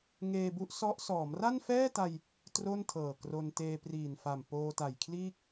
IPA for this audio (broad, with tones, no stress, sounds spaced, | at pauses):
ŋ eː˧ b u˦˥ ʔ s ɔ˦˥ ʔ s ɔː˩˦ m r a˥˩ n f ɛː˥˩ t a˧ j | t r o˥˩ n tʰ ɤː˨˩ k r o˧ n t eː˧ p r iː˨˩ n f a˨˩ m p oː˧ t a˨˩ j kʰ l iː˥˩ k̚